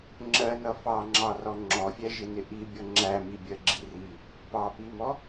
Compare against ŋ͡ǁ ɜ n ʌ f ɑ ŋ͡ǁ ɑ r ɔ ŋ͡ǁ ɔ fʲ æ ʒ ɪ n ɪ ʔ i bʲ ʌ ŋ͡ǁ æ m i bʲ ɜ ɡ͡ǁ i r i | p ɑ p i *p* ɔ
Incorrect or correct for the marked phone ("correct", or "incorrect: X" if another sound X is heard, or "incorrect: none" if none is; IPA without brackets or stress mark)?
incorrect: m